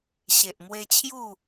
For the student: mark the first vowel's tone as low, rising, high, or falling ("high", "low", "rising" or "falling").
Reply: low